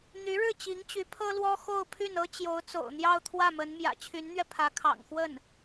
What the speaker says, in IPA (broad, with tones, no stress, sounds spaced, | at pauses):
n̪ y˧˥ ɻ ɻ̩˥˩ t͡ɕ i˧˥ ŋ t͡ɕ y˧˥ pʰ ɤ˥ l w ɔ˥ x o˥˧ ʊ̯ pʰ y˥˩ n ɤ˥ t͡ɕ j o˧˥ ʊ̯ t͡s o̰˨˩ ʊ̯ n̪ j ɑ˥˧ ʊ̯ t̪ʰ w ä˥˩ m ə˧˥ n m j ä̰˨˩ t͡ɕʰ y˧˥ n n̪ ɥ ɛ˧ pʰ ä˧˥ kʰ ɑ̰˨˩ ŋ x w ə˥˩ n